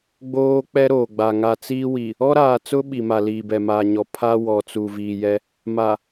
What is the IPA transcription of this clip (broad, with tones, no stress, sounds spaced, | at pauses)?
ɡ͡b oː˦ k͡p ɛ˦ ɾ oː˨ ɡ͡b a˨ ŋ a˨ t͡s iː˦ w i˨ | ɔ˦ ɾ aː˨ t͡s ʊ˦ ɓ i˨ m a˨ l iː˨ b ɛ˨ m aː˨ ɲ ɔ˨ pʰ a˦ w ɔ˨ t͡s u˨ v i˨ j ɛ˦ | m a˨